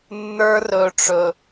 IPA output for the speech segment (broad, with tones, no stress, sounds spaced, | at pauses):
nː ə˞˦ r ɵ˨ ʈ͡ʂ ɵ˨